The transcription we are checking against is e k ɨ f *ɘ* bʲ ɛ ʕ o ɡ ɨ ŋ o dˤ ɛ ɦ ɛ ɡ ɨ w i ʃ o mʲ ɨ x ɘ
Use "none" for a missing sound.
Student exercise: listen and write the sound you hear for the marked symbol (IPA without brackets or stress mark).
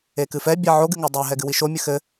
ɛ